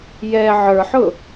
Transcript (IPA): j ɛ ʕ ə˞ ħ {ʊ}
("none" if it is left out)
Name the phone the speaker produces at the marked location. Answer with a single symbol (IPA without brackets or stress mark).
ʊ